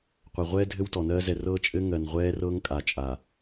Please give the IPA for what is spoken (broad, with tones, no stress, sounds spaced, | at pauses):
qʷ a˨ ʁʷ ɛː˦ dʱ ɘ˦ w t ɔ˨ n ɜː˦ z ɛ˨ r ɤː˦ t͡ʃʼ ɘ˦ ŋ ɜ˨ n ʁʷ ɛː˦ r ɤ˦ ŋ kʼ a˨ t͡ʃʼ a˨